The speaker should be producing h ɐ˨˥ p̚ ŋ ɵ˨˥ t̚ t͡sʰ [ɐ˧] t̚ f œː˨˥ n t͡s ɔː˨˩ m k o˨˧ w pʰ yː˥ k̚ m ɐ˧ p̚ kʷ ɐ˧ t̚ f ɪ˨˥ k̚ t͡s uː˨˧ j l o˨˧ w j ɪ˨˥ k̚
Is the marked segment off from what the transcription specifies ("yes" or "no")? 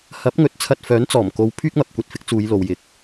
no